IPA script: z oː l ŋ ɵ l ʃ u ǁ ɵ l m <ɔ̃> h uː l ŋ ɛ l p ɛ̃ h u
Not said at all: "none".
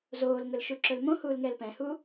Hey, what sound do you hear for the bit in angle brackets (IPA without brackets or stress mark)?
õ